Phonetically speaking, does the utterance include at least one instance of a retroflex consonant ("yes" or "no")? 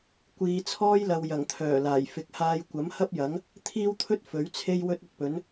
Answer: no